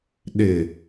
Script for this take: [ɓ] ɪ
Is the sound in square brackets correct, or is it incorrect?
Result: incorrect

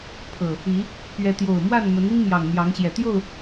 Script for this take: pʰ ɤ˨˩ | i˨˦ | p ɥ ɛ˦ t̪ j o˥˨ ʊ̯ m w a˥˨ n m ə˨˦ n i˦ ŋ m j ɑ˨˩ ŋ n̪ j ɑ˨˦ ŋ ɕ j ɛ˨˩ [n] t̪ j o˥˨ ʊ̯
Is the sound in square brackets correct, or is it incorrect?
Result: incorrect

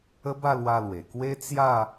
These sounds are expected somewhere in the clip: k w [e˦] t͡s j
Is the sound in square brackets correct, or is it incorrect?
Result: correct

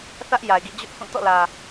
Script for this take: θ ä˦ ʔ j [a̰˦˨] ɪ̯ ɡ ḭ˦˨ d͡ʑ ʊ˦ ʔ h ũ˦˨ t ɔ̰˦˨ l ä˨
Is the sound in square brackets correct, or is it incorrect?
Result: incorrect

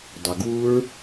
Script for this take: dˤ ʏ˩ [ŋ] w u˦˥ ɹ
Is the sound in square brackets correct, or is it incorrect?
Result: incorrect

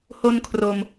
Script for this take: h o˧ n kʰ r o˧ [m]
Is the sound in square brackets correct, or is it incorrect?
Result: correct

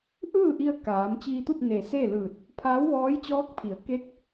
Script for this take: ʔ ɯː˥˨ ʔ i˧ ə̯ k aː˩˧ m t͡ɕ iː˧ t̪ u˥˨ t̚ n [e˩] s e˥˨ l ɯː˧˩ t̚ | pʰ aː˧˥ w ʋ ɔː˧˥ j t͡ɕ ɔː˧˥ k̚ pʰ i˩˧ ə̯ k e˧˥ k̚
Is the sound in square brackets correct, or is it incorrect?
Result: correct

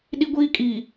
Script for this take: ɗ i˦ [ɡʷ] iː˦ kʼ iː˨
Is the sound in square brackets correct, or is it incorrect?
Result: correct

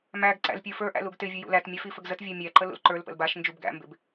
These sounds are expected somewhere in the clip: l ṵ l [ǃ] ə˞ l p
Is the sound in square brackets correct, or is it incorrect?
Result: correct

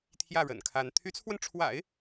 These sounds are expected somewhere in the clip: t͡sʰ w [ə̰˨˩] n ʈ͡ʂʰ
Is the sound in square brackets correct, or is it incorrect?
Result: incorrect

